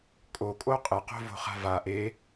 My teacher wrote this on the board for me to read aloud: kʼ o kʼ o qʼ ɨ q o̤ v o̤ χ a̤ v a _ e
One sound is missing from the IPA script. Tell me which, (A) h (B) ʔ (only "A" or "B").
B